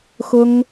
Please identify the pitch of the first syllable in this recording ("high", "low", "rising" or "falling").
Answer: high